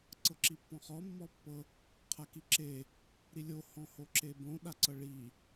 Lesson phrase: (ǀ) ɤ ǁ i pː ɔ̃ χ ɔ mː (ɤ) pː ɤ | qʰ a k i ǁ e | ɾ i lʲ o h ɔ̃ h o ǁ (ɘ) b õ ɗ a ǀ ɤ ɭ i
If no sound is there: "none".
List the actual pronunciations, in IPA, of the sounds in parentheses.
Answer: ǀ, ɔ, e

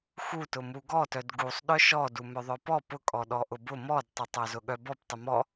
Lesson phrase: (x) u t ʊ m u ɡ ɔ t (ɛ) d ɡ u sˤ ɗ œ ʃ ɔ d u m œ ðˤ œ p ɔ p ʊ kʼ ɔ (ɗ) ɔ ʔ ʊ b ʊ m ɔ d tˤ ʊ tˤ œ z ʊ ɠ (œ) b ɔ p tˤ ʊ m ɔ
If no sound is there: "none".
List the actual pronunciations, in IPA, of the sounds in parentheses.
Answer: x, œ, ɗ, œ

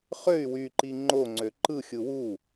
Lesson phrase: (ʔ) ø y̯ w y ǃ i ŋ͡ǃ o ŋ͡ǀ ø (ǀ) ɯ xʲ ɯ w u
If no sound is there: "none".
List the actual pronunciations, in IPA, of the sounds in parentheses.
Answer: χ, ǃ

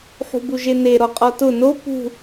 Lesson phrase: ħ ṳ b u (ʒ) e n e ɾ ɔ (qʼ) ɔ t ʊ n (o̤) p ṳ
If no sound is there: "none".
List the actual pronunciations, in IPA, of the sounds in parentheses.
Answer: ʒ, qʼ, o

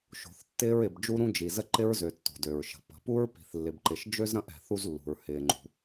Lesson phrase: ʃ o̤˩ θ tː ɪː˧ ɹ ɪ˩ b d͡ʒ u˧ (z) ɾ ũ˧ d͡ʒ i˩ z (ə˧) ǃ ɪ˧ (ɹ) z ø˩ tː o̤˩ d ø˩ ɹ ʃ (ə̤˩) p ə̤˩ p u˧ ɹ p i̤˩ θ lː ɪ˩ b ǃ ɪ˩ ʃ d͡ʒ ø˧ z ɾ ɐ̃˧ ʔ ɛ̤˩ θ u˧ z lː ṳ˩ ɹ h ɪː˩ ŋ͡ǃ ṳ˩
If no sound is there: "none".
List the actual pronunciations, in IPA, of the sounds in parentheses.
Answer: none, ə˧, ɹ, ə̤˩

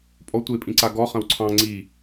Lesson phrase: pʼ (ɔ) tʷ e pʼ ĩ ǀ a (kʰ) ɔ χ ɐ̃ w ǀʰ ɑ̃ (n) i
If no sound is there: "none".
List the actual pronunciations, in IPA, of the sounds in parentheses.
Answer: ɔ, ɡ, ŋ͡ǀ

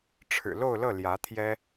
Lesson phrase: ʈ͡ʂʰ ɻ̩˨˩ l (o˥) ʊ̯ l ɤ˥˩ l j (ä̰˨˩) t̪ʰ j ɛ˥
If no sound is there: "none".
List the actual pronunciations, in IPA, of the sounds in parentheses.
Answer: o˥˧, ä˧˥

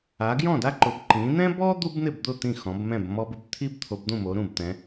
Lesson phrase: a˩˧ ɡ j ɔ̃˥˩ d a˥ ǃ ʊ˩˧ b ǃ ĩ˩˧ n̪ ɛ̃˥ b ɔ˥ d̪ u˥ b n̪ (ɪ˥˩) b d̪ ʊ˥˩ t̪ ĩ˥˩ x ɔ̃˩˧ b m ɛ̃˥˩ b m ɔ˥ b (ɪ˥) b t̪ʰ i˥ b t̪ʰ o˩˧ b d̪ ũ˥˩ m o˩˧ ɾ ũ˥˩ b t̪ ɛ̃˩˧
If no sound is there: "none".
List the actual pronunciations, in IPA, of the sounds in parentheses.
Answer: ɪ˥˩, ɪ˥

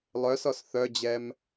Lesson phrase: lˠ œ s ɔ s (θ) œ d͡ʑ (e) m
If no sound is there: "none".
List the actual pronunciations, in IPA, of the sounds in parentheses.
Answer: θ, ɛ

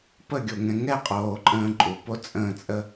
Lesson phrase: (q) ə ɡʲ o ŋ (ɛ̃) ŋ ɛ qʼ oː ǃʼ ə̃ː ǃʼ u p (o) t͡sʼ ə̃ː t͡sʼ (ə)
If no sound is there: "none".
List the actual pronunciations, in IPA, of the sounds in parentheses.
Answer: p, ɛ̃, o, ə

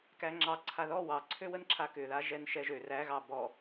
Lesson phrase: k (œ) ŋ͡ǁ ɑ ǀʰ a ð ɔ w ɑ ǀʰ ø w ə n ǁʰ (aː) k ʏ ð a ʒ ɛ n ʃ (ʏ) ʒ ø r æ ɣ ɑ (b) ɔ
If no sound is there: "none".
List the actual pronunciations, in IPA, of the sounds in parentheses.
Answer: æ, a, ɛ, b

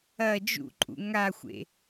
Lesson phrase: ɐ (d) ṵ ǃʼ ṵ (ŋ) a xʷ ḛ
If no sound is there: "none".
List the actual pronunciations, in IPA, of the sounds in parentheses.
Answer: d͡ʒ, ŋ

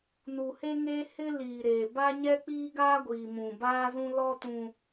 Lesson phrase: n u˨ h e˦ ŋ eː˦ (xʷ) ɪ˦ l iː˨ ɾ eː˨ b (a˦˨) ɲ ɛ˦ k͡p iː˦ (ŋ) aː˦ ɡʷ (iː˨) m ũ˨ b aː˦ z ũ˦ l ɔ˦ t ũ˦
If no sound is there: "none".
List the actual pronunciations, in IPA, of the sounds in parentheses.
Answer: h, a˦, ɡ, iː˨

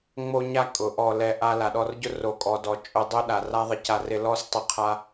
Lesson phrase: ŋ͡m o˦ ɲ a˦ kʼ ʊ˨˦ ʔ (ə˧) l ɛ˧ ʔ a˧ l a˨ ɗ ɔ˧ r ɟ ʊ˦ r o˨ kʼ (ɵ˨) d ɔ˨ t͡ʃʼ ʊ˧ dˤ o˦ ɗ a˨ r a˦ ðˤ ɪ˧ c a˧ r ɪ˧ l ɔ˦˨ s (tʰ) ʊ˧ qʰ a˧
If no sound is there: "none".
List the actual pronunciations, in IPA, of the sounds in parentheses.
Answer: ɔ˧, ɔ˨, tˤ

